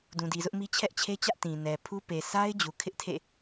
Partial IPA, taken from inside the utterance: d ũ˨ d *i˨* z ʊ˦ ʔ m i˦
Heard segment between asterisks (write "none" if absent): i˨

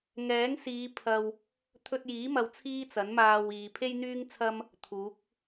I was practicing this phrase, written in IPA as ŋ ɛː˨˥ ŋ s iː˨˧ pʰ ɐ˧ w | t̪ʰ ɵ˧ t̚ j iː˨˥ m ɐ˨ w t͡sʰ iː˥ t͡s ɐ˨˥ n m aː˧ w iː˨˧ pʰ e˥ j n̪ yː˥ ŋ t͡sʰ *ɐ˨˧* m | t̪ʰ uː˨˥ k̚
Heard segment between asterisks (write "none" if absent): ɐ˥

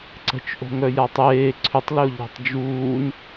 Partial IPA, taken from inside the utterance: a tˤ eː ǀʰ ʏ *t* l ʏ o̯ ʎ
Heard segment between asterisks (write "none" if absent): tˤ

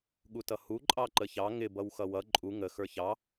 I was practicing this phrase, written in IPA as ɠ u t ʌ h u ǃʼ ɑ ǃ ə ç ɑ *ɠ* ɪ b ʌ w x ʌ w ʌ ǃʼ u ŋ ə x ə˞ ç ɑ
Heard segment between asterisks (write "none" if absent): ŋ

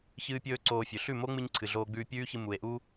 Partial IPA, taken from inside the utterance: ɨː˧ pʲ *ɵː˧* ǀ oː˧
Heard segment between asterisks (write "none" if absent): ɵː˧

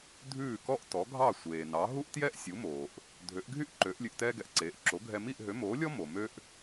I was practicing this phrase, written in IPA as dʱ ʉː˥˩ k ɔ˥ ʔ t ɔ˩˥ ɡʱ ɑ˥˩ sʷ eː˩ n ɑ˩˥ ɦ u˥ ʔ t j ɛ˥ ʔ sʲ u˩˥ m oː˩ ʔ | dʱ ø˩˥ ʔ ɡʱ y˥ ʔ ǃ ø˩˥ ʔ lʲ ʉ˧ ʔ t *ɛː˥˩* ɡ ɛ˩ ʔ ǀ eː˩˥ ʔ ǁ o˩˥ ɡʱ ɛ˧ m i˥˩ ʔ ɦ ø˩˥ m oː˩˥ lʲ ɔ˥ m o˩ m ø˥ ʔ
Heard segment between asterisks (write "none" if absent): ɛː˥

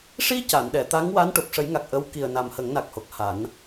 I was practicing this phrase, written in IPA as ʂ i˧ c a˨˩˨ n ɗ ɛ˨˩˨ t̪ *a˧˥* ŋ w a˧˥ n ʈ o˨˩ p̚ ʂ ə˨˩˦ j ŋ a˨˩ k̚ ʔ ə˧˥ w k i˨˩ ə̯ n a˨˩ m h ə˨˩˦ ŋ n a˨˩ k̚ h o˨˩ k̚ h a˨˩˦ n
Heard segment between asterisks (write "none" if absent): a˧˥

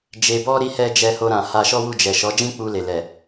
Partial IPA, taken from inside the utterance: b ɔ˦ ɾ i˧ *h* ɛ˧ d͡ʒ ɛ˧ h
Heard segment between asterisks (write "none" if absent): h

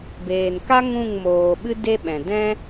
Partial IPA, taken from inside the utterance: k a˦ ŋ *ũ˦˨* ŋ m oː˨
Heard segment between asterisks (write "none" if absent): ũ˦˨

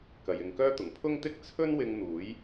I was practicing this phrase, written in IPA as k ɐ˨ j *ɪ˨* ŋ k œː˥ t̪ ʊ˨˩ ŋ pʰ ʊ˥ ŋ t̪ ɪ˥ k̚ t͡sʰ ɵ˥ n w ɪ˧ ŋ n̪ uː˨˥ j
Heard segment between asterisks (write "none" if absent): ɪ˨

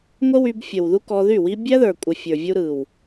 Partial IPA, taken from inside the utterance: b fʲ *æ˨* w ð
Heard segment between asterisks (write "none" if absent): ə˨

